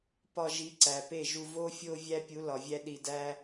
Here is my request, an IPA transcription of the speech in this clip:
p ɒ˧ ʒ i˨˦ ǀ æ˨ p e˦˨ ʒ u˧ v o˦ fʲ o˦ vʲ æ˦ pʲ u˨˦ l ɒ˨ vʲ æ˦ ɗ i˧ d æ˦

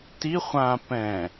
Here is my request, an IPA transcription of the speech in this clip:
t i χʷ ã p ɛ̃

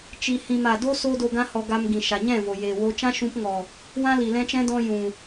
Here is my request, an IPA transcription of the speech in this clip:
t͡ʃ i˧ h ĩ˧ m a˨ d o˦ s oː˦ d o˧ ɡ ã˦ h ɔ˧ ɡ a˧ m ɡ ĩ˨ ʃ a˨ ɲ ɛ̃˦˨ v o˨ j eː˨ w o˧ t͡ʃ ã˦ ʃ ũ˧ p ŋ ɔ˨ | w ã˦ l i˨ l ɛ̃˧ t͡ʃ ɛ̃˦ d ɔ̃˧ j ũ˨

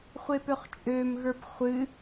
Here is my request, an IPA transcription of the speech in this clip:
χʷ e p ø χ t͡ʃʼ ø m ɣ ə˞ p χʷ ɨ

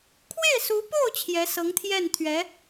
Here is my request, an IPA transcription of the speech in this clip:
kʰ w e˥˩ ɪ̯ s u˧˥ p o˥˩ ʊ̯ t͡ɕʰ j ɛ˧˥ s ɤ˧˥ ŋ t̪ʰ j ɛ˥˩ n t̪ʰ ɥ ɛ˧˥

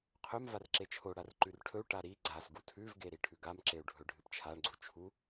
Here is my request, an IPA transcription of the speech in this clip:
qʰ ɵ m v a r ǁ e t͡ʃʰ o ɽ a r ǃ ʉ r ʈʰ ɵ u̯ ʈ a ɾ i ɡ͡ǀ a s ɡ u tʰ ʉ v ɡ e ɾ i ʈʰ ʉ ɡ a m ǁ e u̯ ɖʱ ɵ ɖʱ ɨ p t͡ʃʰ a ɳ ɡ͡ǀ u t͡ʃʰ u

